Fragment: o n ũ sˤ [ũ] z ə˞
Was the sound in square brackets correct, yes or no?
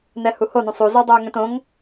no